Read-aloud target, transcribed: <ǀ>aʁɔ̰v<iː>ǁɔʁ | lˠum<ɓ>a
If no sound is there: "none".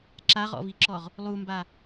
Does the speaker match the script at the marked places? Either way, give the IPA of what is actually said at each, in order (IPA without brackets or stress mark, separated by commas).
ǁ, i, b